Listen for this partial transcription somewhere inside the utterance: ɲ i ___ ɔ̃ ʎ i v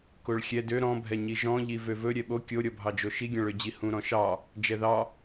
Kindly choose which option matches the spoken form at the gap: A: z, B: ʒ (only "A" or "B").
B